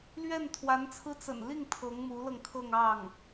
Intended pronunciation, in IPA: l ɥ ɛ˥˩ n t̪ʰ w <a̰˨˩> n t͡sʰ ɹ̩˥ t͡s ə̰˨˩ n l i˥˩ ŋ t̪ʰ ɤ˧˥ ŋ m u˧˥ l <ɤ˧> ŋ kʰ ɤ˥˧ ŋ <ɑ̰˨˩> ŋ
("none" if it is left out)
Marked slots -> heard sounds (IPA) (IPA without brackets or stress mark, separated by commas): a˧˥, ɤ˧, ɑ˥˩